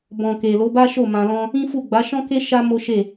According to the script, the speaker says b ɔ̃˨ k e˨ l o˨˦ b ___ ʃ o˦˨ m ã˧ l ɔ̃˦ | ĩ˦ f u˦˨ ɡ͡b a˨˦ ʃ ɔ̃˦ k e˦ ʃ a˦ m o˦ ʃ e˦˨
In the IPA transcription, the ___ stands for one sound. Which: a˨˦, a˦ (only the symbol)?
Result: a˦